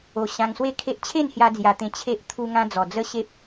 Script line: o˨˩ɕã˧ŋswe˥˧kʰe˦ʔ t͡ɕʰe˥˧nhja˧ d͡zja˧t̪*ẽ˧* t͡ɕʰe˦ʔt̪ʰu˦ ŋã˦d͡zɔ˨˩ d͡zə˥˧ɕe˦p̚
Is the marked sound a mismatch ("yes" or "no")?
no